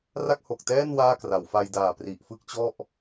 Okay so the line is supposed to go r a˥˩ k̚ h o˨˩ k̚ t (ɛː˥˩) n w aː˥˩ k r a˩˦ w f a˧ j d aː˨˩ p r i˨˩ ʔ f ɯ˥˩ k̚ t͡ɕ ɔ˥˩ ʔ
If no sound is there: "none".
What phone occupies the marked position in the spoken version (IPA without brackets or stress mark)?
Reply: ɛː˥˩